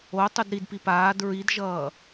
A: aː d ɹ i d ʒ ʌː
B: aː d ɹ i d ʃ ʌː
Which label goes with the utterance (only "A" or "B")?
A